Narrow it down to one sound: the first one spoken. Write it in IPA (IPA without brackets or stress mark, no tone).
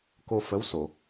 k